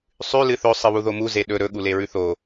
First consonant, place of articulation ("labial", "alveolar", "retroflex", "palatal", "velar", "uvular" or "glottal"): alveolar